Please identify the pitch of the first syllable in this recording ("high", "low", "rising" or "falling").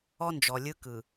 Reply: high